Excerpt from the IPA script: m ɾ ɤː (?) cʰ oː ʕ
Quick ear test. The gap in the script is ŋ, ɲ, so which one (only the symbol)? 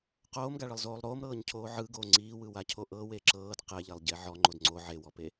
ɲ